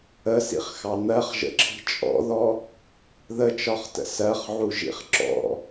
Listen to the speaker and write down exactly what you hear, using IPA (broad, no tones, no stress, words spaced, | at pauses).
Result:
əsḭχxɑ n̪ɜχʒə̰ǁʰi̤ t͡ʃʼɔ̰ðɔ | ðət͡ʃɒχtə̰ sɜχʕuʒḭχ ǁɔ̰